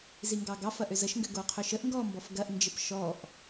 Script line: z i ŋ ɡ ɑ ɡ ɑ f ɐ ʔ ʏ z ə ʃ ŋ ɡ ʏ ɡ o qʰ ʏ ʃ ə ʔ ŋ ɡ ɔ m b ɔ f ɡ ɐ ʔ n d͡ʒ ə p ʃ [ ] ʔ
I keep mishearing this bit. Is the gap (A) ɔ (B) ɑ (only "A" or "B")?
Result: A